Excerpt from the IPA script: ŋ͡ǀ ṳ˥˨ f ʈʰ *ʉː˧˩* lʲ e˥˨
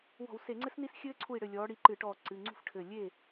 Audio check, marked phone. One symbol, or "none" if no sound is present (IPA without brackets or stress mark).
ɘː˧˩